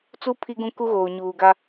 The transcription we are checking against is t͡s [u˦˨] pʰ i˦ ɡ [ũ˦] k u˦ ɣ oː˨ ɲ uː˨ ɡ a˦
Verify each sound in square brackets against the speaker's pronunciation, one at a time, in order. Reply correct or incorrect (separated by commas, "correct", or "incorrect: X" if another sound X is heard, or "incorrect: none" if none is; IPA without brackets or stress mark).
incorrect: u˦, correct